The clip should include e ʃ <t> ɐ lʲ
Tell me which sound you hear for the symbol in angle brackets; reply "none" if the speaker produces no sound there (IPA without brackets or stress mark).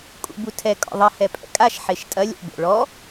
tʼ